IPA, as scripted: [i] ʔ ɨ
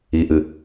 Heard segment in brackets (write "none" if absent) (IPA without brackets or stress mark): i